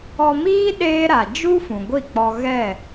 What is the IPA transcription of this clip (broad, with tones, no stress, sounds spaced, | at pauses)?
ɔ˧ m iː˦ ɗ eː˦ ɾ a˨ d͡ʒ u˦ f ũ˨ ɡʷ i˦˨ k͡p ɔ˧ ɣ ɛ˦˨